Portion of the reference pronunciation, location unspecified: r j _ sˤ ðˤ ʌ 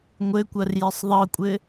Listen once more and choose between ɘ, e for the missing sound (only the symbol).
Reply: ɘ